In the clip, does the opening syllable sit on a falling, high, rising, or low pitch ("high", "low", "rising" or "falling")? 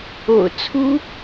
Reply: low